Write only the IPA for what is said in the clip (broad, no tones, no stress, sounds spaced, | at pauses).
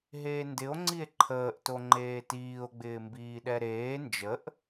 ɦ eː n d ɪ o̯ ŋ͡ǀ i e̯ ǃʰ əː ʔ t o ŋ͡ǃ eː t iː o̯ ɡ͡b ɪː m b iː ɗ ɛ ɾ eː n d͡ʒ ə ʔ